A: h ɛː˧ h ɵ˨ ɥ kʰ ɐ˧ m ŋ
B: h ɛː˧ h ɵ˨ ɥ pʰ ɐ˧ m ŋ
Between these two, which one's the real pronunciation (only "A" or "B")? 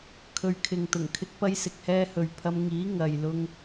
B